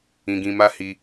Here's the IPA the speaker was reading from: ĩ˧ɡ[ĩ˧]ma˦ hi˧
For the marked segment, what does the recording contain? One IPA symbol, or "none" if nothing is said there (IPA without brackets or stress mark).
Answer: ĩ˧